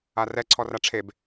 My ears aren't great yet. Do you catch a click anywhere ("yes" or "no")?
yes